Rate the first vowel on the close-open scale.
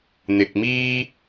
close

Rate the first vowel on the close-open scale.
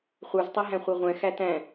mid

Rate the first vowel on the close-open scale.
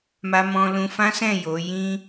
open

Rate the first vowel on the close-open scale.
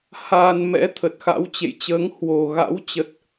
open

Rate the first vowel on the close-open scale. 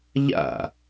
open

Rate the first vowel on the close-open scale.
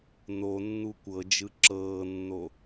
mid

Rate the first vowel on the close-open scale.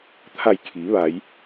open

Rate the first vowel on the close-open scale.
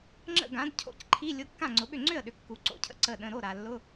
mid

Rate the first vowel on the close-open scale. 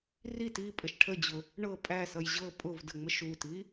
close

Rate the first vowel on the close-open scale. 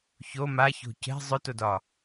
mid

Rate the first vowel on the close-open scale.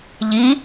close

